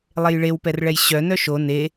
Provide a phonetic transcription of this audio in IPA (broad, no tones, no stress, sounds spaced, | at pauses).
lˠ e j ɭ e w p ɛ r ɭ ɛ j ɕ œ n œ ʃ o n e